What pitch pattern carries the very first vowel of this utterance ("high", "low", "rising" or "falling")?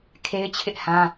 high